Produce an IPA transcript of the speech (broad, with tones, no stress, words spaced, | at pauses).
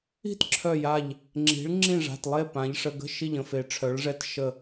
i̤˥˨tǁʰœ˧˩ja˧˩ʎ | ŋ͡ǁi̤˩˧ɭ ŋ͡ǁĩ˧˩ʐa̤˩˧˩tlˠe˧˩ pã˩˧ʎʂə˩˧˩ɡə̤˥˨ ʃi˧˩ʎə̃˥˨fe˩˧ ʈ͡ʂʰœ˩˧ɭʐɛ˧˩t ʃə˧˩